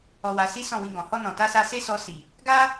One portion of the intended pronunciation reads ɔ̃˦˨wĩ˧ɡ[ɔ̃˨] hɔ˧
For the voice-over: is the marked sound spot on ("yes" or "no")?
yes